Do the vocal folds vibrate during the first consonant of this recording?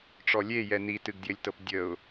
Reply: no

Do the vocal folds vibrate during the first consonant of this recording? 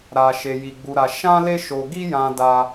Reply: yes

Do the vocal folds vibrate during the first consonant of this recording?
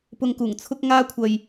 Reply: no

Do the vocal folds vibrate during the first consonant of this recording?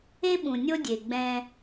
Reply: yes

